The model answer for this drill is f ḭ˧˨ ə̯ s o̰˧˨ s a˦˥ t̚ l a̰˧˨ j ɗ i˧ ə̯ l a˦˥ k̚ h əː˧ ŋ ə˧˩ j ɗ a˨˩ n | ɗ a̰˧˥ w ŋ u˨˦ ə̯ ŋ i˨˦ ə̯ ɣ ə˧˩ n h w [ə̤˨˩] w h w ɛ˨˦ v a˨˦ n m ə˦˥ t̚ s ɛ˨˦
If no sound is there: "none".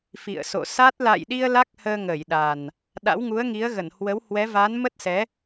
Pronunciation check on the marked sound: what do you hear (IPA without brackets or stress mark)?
ə˨˦